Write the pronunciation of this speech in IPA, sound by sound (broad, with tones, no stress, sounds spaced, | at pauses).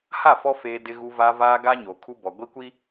h a˦˨ f ɔ˦ f eː˦ d ɪ˦ ɣ u˦ v aː˦ v aː˦ ɡ aː˦ ɲ oː˨ kʰ u˦ b ɔ˨ ɡʷ i˦ kʷ i˦